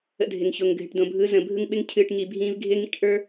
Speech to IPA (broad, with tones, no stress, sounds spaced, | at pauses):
ə̰˧ dʱ ɪ˨ ŋ ç o˨ ŋ ɡʱ ɪ˨ ʈ d õ˨ bʱ ɯ˨˦ z ə̃˨ bʱ ɯ˦ ŋ ɓ ɪ˦ ŋ cʰ ɨː˧ ʈ ŋ i˧ bʱ ĩː˦ v ɡʱ ɪː˦ ŋ ḭ˦ ʈ ʔ ə˞˦